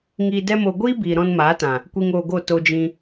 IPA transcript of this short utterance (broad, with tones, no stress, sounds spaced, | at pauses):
ŋ iː˧ d ɛ˦ m o˧ ɡʷ iː˦ b iː˨ ɾ ɔ̃˧ n m aː˨˦ t ã˨ | kʷ i˧ ŋ oː˧ ɡ o˦˨ t o˧ d͡ʒ ĩ˧